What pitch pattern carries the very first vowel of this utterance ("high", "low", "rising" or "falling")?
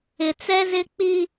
low